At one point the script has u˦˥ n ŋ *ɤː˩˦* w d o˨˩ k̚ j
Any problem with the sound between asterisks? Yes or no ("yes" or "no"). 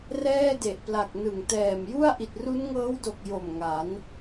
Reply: yes